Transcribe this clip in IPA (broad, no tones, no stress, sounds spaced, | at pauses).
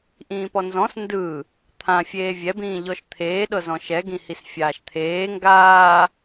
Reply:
ʔ ĩː p ɔ n z ɔ̃ s n d ɯ | t̪ʰ ã fʲ eː vʲ ɛ b ĩː ʎ ɔ ʃ t̪ʰ eː ɗ ɤ z ɔ̃ ʃ ɛ ɡ ĩ h i s fʲ aː ʃ t̪ʰ eː ŋ ɡ aː